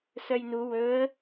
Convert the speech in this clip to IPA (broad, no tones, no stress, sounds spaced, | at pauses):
s œ j n u w ɵ ə̯